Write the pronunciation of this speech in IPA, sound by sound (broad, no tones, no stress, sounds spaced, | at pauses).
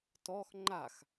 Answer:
t ɔ x ŋ͡ǃ a x